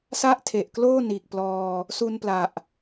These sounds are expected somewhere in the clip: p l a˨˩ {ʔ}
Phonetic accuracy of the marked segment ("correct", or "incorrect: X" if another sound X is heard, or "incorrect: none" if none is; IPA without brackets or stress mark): correct